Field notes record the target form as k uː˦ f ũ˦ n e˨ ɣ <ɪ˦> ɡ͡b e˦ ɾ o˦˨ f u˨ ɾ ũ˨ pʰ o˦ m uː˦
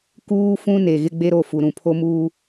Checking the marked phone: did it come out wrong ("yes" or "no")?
no